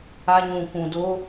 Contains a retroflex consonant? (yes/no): no